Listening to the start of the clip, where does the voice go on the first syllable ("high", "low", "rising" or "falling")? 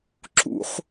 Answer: high